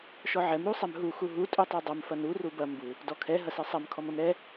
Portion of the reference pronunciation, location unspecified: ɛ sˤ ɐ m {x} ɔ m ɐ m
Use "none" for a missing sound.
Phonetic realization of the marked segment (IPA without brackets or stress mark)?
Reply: kʰ